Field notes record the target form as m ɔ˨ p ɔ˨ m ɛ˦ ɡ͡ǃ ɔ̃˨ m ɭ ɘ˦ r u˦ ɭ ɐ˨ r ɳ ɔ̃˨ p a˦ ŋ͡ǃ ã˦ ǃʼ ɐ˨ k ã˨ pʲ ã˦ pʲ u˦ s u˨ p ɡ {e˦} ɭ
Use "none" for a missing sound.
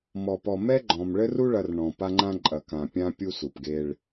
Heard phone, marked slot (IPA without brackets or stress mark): e˦